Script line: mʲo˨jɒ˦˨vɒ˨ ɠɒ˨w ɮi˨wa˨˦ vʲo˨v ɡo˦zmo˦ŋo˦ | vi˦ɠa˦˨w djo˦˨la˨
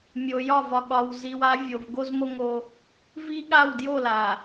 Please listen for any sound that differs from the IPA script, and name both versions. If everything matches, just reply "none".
ɮ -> z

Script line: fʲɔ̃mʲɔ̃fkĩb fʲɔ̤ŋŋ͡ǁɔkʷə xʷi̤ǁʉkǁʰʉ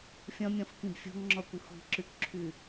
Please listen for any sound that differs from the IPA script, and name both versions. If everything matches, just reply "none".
none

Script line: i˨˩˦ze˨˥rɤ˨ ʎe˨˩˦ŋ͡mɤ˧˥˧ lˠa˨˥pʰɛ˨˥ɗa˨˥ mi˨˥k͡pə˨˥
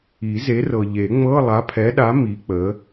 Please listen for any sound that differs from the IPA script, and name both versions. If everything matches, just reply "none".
none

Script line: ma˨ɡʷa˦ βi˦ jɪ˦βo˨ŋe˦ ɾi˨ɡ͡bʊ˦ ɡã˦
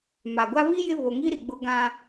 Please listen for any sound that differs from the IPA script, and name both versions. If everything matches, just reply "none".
e˦ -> i˦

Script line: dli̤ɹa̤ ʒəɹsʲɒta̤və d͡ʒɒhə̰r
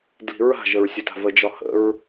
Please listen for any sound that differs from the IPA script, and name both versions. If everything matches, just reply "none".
r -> ɹ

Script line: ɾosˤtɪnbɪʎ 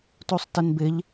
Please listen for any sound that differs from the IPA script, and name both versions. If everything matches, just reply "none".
ɾ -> t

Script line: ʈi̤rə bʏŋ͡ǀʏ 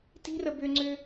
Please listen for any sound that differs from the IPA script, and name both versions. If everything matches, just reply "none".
ʈ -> t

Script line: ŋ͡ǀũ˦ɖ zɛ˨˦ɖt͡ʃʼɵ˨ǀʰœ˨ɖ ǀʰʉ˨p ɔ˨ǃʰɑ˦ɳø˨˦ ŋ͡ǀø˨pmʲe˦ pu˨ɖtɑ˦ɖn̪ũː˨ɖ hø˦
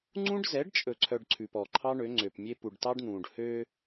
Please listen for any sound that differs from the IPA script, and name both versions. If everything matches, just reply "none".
none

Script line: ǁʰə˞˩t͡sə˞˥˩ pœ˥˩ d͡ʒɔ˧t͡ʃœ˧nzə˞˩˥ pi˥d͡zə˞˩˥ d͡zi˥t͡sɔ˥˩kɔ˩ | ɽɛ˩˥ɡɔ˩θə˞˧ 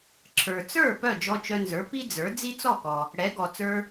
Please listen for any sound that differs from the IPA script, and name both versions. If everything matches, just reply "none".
θ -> t͡s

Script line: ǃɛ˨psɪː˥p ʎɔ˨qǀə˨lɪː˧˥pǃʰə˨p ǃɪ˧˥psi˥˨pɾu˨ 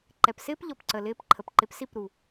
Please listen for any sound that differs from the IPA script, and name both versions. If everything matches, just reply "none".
q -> p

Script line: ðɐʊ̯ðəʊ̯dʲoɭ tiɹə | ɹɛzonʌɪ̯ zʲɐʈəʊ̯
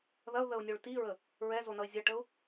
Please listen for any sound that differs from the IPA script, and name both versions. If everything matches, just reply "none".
dʲ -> nʲ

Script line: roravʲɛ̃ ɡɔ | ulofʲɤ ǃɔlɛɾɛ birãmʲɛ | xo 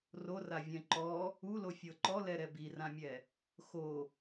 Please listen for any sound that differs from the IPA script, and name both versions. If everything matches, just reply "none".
ɡ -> ǃ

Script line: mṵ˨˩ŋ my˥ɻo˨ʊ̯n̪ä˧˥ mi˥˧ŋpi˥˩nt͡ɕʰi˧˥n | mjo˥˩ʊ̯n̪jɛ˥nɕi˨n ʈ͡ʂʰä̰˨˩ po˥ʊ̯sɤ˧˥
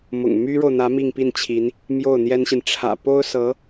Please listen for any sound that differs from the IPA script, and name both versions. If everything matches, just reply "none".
ṵ˨˩ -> ʊ̰˨˩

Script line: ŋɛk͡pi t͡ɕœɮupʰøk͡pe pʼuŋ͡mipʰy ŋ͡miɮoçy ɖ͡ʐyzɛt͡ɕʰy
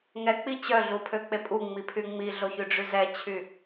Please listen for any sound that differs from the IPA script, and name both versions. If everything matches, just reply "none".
none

